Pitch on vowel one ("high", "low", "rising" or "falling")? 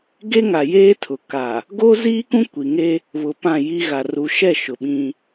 high